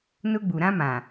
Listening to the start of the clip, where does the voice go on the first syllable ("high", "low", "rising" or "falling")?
high